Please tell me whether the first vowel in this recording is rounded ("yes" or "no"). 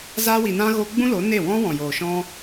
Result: no